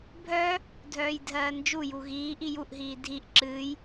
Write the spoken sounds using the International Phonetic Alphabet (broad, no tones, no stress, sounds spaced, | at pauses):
bʱ œ | dʱ œː j dʱ ɜː n d͡ʒ u j u ɣ iː ʔ i j u ʔ ɦ iː dʱ i ʔ ǁ ɨː j